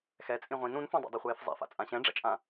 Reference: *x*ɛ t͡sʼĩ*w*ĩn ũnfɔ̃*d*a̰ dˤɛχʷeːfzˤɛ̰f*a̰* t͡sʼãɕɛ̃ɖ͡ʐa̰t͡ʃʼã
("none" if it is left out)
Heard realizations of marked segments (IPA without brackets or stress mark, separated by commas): x, ʁʷ, dˤ, a̰